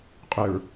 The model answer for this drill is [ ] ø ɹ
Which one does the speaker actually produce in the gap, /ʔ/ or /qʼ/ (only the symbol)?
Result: qʼ